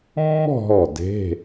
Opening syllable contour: falling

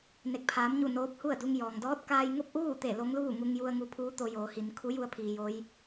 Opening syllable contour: rising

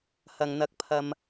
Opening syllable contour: low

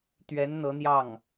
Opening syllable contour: rising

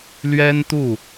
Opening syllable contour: high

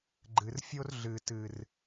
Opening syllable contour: low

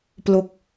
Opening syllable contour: low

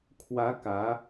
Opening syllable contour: rising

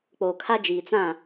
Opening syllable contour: low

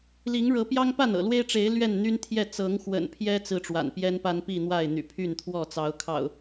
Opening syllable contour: rising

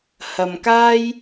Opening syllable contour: low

